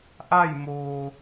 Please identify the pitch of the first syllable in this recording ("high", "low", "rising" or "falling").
falling